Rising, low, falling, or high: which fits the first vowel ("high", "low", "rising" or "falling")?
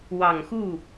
low